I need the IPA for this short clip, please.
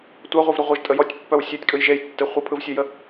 tʷ a ʁʷ œ v ɾ ə ʁʷ ə ʒ tʼ ə j ɔ tʲ pː œ w sʲ œ tʲ kʼ ɯ j ʒ e j tː e χʷ ə pʰ ɯ v sʲ œ j ə

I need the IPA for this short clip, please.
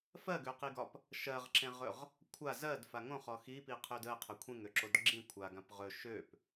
f ɜ ɡ ø q i ɡ ɒ p | ʃ ɜ ʁ ǁ ẽ ʁ ɵ ʁ | kʷʰ a z ɜ d f a ŋ õ χ ɔ x i p i qʰ ø d ə qʰ ɵ kʷʰ ẽ ŋ ø ǁ o d ɡ͡ǁ ĩ kʷʰ a ɡ ã p ʁ ɵ ʃ ø p

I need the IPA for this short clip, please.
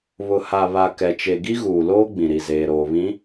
β ʊ˨ h a˨ β a˨ k ɛ˨ t͡ʃ e˨ ɡ i˦ ɣ uː˨ l oː˦ ɡ͡b ĩ˨ ɾ i˨ z eː˨ ɾ oː˨ β ĩ˨˦

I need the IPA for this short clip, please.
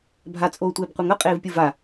bʱ a t͡sʼ oː tʷ eː b qʷ ɛ ŋ ʌ qʼ eː v pʲ ɯ v a

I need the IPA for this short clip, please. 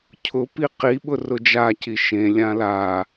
cʰ ʊ p i q i ɓ ʊ r ʊ d͡ʒ a c i ʃ ẽ lʲ ã l a

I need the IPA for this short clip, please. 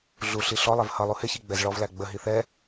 ɮ u ɬ i ɬ ɔ lˠ ɛ v h ʌ lˠ u h ɪ ç i ɡ͡b ɛ z ɭ ɔ v l æ ɡ͡b ə ɦ i θ ɛ

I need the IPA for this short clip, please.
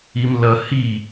i m l ʌ h i

